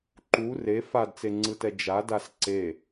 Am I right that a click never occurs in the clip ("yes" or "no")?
no